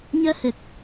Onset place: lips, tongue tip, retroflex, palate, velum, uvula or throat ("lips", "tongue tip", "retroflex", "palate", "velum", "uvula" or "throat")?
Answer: palate